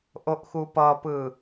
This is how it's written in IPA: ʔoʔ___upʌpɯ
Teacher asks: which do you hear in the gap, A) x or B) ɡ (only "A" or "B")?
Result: A